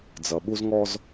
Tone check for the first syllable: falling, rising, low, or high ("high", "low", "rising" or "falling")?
low